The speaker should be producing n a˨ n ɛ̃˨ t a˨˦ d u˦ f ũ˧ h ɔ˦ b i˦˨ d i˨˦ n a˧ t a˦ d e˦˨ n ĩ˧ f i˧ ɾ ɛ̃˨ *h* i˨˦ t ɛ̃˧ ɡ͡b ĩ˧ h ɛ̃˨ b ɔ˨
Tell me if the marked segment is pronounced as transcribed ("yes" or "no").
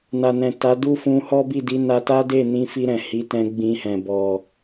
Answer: yes